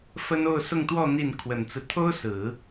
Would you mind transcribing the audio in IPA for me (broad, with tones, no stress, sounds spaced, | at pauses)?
f ə˥ n o˥˧ ʊ̯ s ʊ˥˧ ŋ t̪ w ɔ˥˧ n̪ i˥˩ n kʰ w ə˨˩ n t͡s ɹ̩˦ t̪ʰ o˥ ʊ̯ s ɹ̩˨˩˦